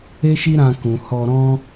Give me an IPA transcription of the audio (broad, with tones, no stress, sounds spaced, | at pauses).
e˦ ʃ i˦ ɾ ã˧ k ũ˨ h ɔ˧ ɾ ɔ̃˦